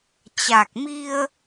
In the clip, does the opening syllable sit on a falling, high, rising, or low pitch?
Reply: low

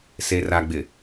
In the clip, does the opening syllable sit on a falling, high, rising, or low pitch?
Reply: low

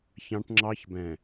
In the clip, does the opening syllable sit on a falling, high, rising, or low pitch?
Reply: high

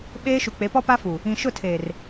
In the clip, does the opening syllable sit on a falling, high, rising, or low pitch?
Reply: high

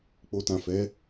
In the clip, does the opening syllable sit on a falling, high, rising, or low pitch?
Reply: low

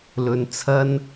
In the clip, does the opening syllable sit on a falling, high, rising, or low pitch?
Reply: low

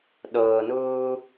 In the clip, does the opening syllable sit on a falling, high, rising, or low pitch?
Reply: low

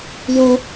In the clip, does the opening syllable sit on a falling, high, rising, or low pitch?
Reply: high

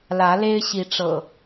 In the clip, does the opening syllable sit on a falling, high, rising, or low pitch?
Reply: rising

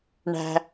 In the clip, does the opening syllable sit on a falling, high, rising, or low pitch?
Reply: low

